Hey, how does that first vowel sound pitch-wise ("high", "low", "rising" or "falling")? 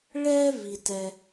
high